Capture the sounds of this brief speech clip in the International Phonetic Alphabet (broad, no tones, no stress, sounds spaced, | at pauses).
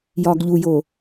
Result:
j ɒː ɡ ʎ u j oː